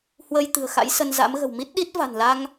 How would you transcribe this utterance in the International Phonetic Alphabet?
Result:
h w əː˧ j t̪ ɨ̤˨˩ ə̯ x a̰˧˥ j s ə˧ n z a̰˧˥ m ɣ ə̤˨˩ w m i˦˥ t̚ ɗ i˦˥ t̚ v a̤˨˩ n l a˧ ŋ

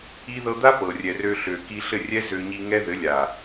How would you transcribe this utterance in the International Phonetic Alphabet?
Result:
i˦ ð ɤ˧ d̪ a˦ p ɤ˨ rʲ ɛ˨ r ø˧ ɬ ø˨ k i˧ ɬ ɘ˦˨ rʲ ɛ˦ z ø˧ ɲ i˧ ŋ ɛ˦ ð ɘ˨˦ lʲ a˨

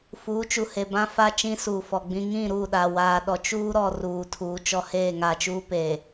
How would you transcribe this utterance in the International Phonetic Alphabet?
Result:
f uː˨˦ t͡ʃ u˨ h e˨ b ã˦ f a˦ t͡ʃ ĩ˦ s uː˨ f ɔ˨ ɡ͡b ĩ˦ ŋ ĩ˦˨ ɾ u˦˨ ɗ a˨ w aː˨ ɗ ɔ˨ t͡ʃ uː˦ ɾ ɔ˨ r uː˨ tʰ uː˨ t͡ʃ ɔ˦ h eː˦˨ ŋ a˨ t͡ʃ uː˦ p eː˨

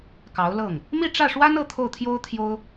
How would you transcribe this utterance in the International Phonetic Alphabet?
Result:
k ɑ˧˥ ʊ̯ l ɤ˥˩ ŋ | m i˥˧ ʈ͡ʂ ä˥˩ ʂ w a˥ n ɤ˥˧ t̪ʰ o˥˩ ʊ̯ t̪ʰ j o˥ ʊ̯ t̪ʰ j o˥ ʊ̯

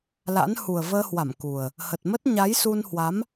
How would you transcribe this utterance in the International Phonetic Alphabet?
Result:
l a̰˧˥ n h u˨˩ ə̯ v əː˧ h w a˧˩ m k u˨˩ ə̯ | h ə˨˩ t̚ m ə˦˥ t̚ ɲ a˨˦ j s u˧ n h w a˨˦ m

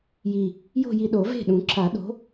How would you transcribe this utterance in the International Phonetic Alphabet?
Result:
j i˨˩ | j o̤˥˧ j i˧ ɗ o˨˩˦ v e̤˥˩ ɗ ũ˨˩˦ ǁ a˨˩˦ ɗ o̤˨˥

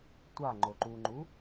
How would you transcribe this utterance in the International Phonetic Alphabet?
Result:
tʷ a ŋ͡ǃ o ǃ u ŋ͡ǃ u

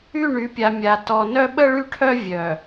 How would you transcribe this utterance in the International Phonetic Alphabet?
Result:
y˦˨ ɳ y˨˦ pʲ a˨ mʲ a˨ t ɔ˨ n œ˦ ɓ ə˦ ɭ y˦ ʈʰ œ˦ vʲ œ˨

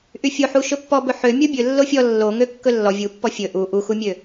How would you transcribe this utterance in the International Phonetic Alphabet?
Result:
ʔ y fʲ o ħ u ʃ ɵ pː ɔ b ɵ ħ ø mʲ o bʲ ɵ lː o fʲ ɔ lː o ŋ ø kː ɵ lː ɔ vʲ u pː ɔ fʲ ɵ ʔ u ʔ u x u mʲ ø

